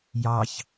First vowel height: low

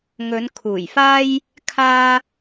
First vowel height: mid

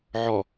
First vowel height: mid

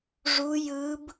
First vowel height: high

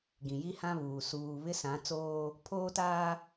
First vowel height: high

